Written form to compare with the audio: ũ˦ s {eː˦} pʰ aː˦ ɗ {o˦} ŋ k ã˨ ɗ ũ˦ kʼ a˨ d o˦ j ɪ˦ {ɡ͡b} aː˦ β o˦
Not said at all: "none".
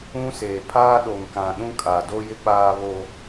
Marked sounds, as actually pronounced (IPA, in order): eː˨, o˨, k͡p

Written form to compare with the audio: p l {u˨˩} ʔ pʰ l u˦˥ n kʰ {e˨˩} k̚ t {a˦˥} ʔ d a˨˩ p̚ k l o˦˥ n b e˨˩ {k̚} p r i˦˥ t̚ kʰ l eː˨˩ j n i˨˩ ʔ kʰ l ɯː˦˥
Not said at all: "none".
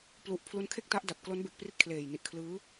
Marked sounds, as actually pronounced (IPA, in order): u˨˩, e˥˩, a˦˥, k̚

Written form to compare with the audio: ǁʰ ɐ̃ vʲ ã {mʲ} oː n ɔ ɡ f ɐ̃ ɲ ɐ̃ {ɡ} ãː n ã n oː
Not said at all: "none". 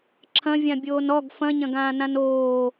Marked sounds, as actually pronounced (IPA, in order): bʲ, ɡ

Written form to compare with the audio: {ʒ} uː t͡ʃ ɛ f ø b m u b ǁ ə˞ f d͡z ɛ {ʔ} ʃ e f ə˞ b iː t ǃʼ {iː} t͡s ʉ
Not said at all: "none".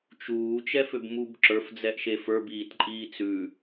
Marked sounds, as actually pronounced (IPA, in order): t͡ʃ, ʔ, iː

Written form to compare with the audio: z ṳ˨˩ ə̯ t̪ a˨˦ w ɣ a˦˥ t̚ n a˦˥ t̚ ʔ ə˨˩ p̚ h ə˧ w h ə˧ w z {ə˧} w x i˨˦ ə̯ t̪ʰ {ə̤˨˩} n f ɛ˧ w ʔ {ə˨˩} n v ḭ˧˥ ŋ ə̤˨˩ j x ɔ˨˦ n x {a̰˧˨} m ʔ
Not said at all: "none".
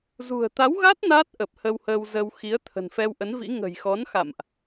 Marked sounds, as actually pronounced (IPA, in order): ə˧, ə̤˨˩, ə˨˦, a̰˧˨

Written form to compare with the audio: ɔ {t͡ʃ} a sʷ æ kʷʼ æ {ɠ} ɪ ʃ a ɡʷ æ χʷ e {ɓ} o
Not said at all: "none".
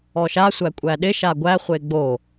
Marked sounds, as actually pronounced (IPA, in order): ʃ, ɗ, ɡ͡b

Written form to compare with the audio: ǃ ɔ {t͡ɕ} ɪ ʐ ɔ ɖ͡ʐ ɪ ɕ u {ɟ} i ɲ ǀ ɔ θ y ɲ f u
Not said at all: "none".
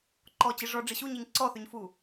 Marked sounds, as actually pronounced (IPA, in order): t͡ɕ, ɲ

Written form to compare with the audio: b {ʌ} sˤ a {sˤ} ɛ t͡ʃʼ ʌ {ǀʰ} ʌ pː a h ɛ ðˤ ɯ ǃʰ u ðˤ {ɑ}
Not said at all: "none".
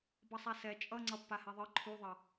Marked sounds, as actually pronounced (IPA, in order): ʌ, s, ŋ͡ǀ, ʌ

